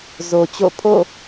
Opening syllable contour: low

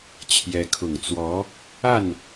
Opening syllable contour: rising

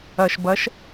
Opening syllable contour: low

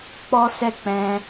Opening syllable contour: high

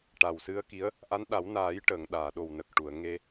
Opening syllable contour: low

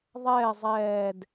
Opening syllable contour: falling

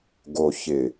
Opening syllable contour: low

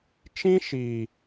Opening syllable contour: high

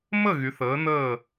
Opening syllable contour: falling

